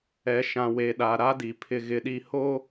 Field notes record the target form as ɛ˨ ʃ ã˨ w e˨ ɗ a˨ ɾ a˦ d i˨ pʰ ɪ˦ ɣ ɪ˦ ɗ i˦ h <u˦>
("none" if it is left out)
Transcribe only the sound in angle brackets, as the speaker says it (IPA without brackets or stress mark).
o˦